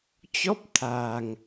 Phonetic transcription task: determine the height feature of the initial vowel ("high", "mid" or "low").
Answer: mid